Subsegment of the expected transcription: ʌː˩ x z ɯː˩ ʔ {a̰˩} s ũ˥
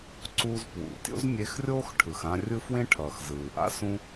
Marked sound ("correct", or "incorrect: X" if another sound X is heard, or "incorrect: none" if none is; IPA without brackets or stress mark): incorrect: a̰˥